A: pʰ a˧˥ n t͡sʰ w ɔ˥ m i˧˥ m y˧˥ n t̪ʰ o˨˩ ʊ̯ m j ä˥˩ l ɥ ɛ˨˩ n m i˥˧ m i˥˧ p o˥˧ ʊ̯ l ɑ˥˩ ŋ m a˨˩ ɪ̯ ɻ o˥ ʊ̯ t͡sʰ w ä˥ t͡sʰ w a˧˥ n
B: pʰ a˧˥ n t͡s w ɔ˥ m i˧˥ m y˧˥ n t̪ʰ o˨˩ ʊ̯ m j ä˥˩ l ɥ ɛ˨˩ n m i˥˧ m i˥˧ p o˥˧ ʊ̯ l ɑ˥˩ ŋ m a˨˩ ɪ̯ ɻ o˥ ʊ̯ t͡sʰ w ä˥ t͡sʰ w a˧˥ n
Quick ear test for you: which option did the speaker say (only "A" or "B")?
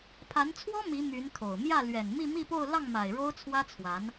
A